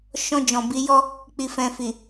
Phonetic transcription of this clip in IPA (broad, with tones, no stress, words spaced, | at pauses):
ʃɔ̃˧ d͡ʒɔ̃˨bi˨˦jɔ˦ | k͡pi˨fɛ̃˨fi˨